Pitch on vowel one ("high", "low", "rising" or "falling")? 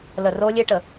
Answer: low